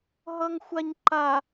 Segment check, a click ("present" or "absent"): present